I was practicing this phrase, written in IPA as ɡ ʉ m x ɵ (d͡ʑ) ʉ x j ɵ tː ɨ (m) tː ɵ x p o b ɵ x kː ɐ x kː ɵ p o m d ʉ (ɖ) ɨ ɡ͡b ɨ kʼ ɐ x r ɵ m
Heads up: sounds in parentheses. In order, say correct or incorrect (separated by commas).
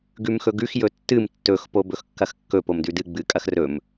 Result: incorrect, correct, incorrect